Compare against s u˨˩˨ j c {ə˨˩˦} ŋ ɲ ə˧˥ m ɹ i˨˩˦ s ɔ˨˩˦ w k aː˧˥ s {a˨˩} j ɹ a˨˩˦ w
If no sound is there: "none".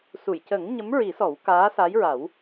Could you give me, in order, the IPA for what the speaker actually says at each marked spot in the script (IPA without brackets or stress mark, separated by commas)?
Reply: ə˨˩˦, a˧˥